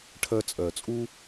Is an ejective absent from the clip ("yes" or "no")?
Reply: no